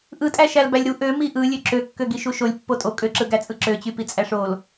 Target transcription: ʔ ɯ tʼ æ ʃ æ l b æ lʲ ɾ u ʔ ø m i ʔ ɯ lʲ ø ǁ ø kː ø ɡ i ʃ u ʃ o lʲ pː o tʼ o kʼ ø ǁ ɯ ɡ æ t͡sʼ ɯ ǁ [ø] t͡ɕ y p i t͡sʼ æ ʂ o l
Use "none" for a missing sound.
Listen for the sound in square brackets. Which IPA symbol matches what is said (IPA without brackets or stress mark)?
ø